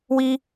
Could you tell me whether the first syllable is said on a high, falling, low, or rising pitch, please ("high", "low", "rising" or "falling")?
high